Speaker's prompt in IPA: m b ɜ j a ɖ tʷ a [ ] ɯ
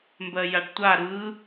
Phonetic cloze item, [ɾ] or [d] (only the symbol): ɾ